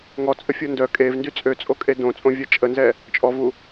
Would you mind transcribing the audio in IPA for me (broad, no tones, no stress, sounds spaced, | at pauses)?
ŋ ɔ t͡sʼ ə fʲ o n d œ kʼ e v n d y t͡sʼ ø t͡sʼ o kʼ e d õ t͡sʼ õ vʲ a t͡ʃʼ ə n z ɛ | t͡ʃʼ ɔ v u